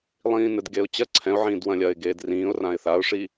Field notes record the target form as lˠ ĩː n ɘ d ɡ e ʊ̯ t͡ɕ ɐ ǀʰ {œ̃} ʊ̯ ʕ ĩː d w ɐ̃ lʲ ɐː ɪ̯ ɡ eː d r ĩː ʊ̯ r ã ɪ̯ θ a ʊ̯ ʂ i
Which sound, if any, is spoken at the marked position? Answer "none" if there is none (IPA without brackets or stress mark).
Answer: ɛ̃